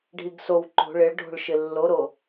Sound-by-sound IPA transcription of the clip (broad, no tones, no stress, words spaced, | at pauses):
ɖʱiɡsow ǃo̤ ɭɪɭɖʱo̤ɭʃɪ lːoɾo